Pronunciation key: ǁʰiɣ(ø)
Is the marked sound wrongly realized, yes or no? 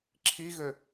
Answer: no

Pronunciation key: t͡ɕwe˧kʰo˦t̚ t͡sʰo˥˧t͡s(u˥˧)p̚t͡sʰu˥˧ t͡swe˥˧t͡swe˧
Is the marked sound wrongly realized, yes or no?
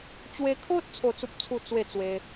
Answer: yes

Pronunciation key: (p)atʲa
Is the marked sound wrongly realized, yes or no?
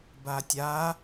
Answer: yes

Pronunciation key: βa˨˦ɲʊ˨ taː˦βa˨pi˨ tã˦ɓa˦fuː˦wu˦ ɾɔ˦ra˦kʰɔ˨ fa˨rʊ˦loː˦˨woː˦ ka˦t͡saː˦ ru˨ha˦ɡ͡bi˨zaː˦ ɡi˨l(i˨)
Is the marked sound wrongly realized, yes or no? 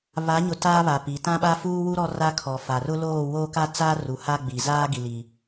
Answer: no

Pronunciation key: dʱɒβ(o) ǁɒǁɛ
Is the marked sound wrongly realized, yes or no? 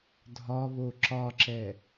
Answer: no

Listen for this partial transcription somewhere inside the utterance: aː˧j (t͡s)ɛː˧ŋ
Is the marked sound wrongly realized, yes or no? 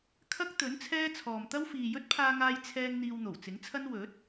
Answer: yes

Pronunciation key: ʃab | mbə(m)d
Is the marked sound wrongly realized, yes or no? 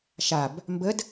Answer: yes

